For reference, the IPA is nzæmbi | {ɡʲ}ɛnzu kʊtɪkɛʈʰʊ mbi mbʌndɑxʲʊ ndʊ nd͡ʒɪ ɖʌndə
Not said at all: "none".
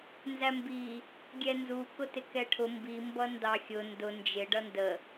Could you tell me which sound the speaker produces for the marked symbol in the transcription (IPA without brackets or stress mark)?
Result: ɡʲ